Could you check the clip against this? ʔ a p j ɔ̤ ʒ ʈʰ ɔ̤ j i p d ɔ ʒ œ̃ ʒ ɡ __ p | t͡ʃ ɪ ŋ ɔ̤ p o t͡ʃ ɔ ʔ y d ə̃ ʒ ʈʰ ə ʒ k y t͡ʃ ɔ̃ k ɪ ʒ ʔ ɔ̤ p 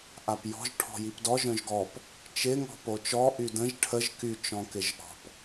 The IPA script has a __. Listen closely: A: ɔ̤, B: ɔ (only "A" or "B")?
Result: B